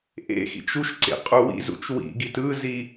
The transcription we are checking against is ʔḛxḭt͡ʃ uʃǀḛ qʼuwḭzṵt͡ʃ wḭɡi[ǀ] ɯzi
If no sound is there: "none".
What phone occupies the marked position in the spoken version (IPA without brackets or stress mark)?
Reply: t